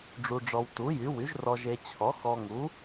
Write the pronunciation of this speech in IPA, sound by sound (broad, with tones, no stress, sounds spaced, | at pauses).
ɖ͡ʐ u˧ ɖ͡ʐ ɔ˧ w t u˨˥ j y˨˥ w y˨˥ ʒ r ɔ˧ ʒ e˧ t͡ɕʰ ɔ˨˥ x ɔ˧ ŋ u˨˥